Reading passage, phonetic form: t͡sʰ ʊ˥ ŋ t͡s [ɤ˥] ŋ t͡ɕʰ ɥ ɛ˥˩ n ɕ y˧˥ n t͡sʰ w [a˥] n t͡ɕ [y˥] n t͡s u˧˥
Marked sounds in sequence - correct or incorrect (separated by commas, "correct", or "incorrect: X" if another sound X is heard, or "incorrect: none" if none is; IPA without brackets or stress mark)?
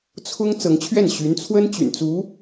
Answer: incorrect: ɤ˧˥, incorrect: ə˥, incorrect: y̰˨˩